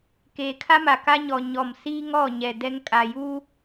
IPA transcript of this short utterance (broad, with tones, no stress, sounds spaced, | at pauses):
k eː˨ kʰ a˦ m a˨ k a˦ ɲ ɔ˨ ɲ ɔ˨ m s iː˦ ŋ ɔ˦˨ ɲ ɛ˨ d ɛ˦ ŋ kʼ a˨ j uː˦